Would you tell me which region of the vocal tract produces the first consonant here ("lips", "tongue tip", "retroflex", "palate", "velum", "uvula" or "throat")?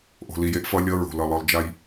throat